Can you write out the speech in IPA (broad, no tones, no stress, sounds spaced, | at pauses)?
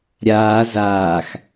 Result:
ɾʲ aː z aː x